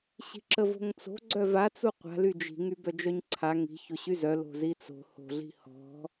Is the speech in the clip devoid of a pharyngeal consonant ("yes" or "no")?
yes